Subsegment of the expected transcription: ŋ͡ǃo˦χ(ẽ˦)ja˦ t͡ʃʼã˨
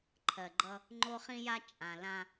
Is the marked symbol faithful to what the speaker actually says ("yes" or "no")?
no